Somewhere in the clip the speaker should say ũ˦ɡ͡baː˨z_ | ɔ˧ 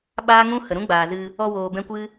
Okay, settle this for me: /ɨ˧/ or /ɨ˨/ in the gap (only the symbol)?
ɨ˧